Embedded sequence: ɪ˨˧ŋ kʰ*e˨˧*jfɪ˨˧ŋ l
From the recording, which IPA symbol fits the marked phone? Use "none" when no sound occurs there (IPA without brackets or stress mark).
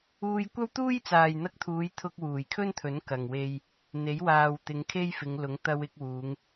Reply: e˥